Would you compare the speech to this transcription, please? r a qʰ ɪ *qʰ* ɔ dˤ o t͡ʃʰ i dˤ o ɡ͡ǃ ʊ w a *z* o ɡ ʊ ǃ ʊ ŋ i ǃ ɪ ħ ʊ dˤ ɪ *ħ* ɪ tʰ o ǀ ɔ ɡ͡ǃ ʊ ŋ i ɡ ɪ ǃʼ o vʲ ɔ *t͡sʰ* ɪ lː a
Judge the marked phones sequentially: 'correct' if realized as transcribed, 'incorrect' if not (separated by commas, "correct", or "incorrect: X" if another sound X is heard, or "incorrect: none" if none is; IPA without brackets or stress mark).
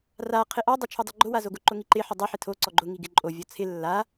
incorrect: ʔ, correct, correct, correct